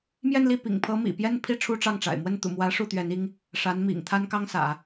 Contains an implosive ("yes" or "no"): no